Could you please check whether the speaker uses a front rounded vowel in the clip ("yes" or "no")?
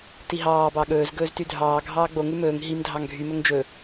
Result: yes